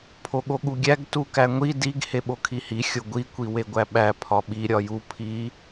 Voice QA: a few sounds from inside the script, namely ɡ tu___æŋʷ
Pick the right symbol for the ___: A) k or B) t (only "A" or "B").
A